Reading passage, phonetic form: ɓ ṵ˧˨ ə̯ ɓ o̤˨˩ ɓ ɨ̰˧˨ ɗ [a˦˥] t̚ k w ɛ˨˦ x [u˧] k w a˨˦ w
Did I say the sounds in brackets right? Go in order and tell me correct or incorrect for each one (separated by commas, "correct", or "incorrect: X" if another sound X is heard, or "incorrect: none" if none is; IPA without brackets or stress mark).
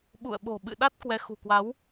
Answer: correct, incorrect: ṳ˨˩